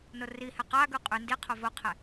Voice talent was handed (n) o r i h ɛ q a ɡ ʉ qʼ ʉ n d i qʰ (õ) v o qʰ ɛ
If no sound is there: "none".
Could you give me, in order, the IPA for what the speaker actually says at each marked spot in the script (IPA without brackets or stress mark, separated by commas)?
n, o